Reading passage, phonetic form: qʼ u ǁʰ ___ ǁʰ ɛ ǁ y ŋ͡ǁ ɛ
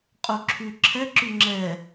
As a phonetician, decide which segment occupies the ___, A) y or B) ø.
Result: A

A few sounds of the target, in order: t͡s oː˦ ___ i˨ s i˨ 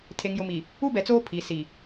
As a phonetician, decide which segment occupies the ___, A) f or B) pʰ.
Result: B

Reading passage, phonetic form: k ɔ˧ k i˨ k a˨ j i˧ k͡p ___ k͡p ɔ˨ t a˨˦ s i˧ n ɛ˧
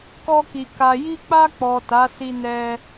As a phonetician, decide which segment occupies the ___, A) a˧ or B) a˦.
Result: A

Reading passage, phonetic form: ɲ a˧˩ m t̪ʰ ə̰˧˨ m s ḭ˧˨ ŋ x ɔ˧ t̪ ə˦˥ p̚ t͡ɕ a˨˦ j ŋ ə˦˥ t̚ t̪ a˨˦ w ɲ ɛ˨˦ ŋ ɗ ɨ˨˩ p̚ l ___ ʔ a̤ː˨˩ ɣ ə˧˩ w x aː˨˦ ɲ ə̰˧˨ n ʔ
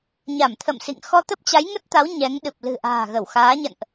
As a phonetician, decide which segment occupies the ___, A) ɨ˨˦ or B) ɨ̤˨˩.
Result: B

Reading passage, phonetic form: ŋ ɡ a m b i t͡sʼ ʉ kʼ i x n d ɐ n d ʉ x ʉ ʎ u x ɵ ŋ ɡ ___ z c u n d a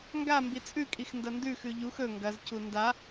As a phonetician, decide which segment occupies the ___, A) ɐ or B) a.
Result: A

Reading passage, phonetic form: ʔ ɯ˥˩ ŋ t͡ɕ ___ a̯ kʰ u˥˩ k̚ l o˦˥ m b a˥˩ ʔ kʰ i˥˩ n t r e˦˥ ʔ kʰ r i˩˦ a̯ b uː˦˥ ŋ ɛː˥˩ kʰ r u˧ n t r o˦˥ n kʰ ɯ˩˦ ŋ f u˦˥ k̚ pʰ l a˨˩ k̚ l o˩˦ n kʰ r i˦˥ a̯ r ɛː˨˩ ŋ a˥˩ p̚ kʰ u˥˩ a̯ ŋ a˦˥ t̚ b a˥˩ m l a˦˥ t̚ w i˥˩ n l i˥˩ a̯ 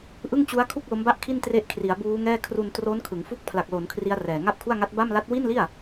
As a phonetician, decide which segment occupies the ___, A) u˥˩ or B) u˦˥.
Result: B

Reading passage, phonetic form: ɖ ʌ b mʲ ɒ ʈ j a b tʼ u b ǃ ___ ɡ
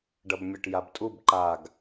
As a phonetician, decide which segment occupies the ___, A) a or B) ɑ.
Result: A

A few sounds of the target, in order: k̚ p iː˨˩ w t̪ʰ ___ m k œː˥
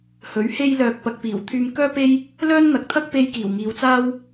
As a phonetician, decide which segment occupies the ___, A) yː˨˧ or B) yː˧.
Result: B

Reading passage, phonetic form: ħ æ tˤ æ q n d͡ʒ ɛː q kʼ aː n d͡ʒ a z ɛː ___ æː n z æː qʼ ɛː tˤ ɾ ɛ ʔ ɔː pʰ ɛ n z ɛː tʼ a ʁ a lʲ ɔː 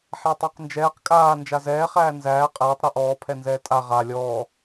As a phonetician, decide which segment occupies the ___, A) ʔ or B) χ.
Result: B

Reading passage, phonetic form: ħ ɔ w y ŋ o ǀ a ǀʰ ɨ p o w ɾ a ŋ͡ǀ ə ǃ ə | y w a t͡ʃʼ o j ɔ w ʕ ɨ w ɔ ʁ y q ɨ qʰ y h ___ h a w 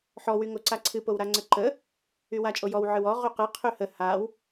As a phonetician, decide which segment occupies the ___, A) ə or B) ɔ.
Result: A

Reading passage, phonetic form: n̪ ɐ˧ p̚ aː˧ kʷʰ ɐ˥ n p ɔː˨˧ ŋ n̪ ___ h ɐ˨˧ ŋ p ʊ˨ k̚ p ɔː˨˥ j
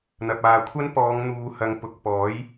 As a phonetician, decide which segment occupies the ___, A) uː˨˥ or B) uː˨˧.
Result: B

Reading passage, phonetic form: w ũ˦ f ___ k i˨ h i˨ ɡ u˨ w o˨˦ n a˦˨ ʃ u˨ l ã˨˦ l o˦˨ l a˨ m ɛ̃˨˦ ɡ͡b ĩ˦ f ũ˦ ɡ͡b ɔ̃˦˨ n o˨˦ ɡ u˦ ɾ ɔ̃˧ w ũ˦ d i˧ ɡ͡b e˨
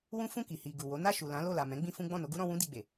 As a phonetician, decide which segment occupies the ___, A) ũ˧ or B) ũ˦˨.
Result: B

